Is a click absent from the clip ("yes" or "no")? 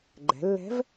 no